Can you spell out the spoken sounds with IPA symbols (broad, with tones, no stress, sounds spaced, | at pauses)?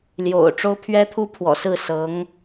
l j o̰˨˩ ʊ̯ ʈ͡ʂ o˥ ʊ̯ pʰ ɥ ɛ˥ t̪ʰ u˥ pʰ w ɔ̰˨˩ s ɹ̩˥˩ s ɤ˧˥ ŋ